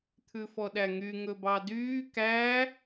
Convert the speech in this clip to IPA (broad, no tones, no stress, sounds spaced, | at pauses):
t̪ʰ ʉ f ɔ ɗ æ ŋ y ŋ ɵ b ɑ d yː k æ